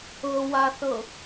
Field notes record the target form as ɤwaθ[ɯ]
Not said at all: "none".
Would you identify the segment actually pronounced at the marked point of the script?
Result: ɤ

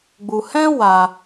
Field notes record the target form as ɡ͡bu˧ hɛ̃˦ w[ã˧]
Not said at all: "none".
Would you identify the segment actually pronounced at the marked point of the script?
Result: a˧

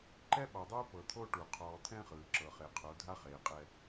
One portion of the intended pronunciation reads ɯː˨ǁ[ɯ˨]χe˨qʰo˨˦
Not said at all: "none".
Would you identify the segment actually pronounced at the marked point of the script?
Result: ɤ˨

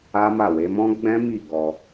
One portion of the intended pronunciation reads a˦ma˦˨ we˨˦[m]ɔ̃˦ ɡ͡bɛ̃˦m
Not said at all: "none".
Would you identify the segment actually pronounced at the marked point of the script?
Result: m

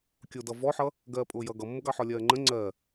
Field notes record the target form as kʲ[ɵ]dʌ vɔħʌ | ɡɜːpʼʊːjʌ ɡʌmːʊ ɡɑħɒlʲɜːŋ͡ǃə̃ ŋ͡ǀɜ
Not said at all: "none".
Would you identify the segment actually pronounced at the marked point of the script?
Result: ʊ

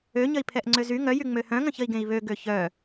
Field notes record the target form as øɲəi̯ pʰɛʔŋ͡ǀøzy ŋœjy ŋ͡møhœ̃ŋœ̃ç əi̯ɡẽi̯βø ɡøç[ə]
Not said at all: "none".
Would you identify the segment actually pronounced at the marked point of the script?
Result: œ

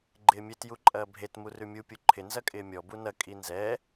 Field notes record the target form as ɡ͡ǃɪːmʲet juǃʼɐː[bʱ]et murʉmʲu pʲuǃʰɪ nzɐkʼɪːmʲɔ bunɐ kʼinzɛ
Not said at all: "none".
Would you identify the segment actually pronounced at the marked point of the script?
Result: bʱ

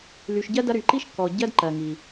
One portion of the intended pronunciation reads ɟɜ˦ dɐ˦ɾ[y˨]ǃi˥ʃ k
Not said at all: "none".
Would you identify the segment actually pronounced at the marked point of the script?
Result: y˨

